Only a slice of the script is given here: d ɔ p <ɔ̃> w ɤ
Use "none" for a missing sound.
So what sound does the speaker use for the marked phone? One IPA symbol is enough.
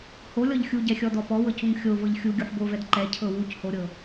ɔ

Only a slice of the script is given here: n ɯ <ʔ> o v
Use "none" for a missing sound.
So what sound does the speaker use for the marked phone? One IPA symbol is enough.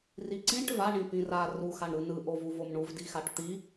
ʔ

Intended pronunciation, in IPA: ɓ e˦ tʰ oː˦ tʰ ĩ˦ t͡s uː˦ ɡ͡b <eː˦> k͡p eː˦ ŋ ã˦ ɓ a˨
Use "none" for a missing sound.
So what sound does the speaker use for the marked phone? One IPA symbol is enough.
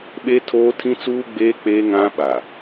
eː˦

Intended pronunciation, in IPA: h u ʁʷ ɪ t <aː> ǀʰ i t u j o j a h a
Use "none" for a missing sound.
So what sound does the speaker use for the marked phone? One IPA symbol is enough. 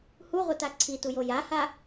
a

